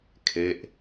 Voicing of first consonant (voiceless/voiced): voiceless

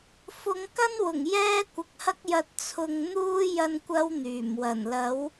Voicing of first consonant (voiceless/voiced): voiceless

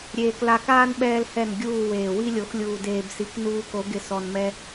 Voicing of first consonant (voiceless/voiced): voiced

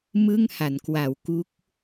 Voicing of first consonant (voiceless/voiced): voiced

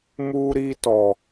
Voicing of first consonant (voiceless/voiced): voiced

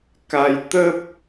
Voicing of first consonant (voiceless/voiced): voiceless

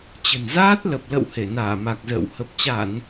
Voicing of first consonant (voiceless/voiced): voiceless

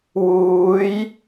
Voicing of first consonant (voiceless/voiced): voiced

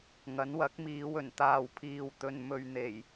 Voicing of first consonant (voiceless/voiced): voiced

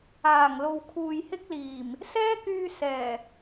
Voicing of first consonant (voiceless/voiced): voiced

